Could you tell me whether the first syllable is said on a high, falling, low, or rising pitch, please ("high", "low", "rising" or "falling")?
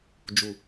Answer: low